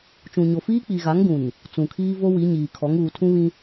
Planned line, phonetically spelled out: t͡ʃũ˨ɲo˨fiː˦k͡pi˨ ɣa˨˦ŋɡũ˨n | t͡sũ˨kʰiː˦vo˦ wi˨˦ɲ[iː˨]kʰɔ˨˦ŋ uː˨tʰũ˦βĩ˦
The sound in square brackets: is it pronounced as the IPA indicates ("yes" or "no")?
yes